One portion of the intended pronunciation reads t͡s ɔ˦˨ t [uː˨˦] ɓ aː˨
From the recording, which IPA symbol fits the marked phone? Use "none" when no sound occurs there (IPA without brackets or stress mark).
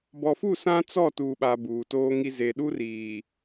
uː˨